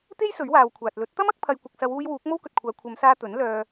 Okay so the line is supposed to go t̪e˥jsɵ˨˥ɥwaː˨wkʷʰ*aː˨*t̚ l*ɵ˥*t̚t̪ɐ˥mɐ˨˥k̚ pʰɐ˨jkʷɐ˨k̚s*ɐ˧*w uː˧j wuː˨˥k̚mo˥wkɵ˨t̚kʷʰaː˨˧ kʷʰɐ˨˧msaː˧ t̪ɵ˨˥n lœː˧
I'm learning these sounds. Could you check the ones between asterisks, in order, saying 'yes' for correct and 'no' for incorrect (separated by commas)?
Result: yes, no, no